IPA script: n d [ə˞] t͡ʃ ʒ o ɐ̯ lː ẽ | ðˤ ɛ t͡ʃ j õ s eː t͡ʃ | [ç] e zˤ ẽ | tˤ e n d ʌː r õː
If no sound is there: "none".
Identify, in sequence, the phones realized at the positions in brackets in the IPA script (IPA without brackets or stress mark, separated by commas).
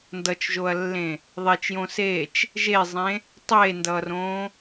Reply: ʌ, ʒ